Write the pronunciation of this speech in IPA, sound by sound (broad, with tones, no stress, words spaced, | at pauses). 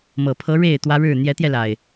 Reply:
mɤ˨˩pʰɤ˨˦ ɻe˥˨ɪ̯ t̪wä˦ɻɻ̩˥˨ n̪jɛ˨˦t̪jɛ˧la˨˩ɪ̯